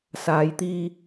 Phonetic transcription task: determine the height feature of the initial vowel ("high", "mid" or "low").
low